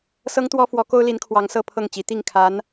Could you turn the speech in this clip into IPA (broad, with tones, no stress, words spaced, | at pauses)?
sɤ˥ŋt̪wɔ˥fwɔ˧˥ko˥ʊ̯ li˧˥nkʰwɑ˧˥ŋ sɤ˥˧ pʰɤ˥˩ŋt͡ɕi˧˥ t̪i˥˩ŋkʰa˧˥n